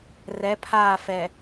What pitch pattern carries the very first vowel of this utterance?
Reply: rising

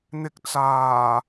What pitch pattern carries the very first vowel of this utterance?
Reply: low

